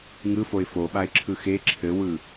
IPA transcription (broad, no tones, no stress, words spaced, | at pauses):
ŋɯfoɪ̯ foɓaɪ̯ǁʰɯ xe ǁʰɘwɯ